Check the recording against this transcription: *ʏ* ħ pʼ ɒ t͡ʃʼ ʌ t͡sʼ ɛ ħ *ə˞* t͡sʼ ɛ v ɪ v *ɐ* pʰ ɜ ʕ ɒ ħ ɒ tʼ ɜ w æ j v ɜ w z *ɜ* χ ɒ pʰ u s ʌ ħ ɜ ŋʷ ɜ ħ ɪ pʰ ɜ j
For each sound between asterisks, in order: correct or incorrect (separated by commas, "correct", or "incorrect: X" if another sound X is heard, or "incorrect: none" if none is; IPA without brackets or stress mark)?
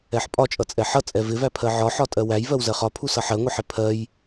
incorrect: ɛ, incorrect: ʌ, incorrect: æ, correct